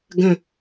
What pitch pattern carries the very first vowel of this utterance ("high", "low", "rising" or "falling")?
falling